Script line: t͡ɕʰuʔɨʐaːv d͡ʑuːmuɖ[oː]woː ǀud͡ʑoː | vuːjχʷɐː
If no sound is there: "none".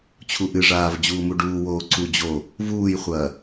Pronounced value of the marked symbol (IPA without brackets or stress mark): uː